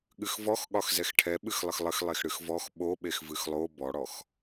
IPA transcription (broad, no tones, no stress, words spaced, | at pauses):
ɠɨxvɔxɠɒx zɛxʈʰɛɓɨxlˠəx lˠəxlˠex ɽɨxvɔx ɓoɓex vɨxlˠo bɔɽɔx